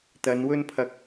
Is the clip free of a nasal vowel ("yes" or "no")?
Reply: yes